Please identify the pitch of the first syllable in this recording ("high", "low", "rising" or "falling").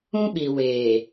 high